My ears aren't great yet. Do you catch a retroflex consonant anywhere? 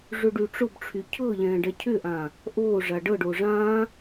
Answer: yes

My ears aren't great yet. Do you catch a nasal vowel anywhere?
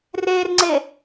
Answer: no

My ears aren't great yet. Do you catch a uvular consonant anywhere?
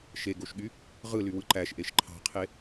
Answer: yes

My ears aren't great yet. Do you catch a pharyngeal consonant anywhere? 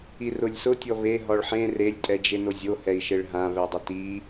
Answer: yes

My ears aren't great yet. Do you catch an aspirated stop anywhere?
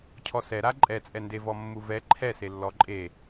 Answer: yes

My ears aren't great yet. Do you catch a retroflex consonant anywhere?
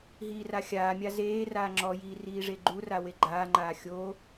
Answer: yes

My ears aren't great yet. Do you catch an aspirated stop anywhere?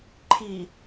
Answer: yes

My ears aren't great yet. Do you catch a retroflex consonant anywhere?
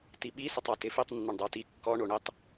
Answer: yes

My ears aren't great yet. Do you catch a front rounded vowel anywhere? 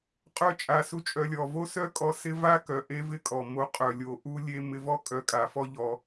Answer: yes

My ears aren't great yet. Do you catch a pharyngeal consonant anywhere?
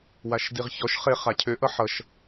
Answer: yes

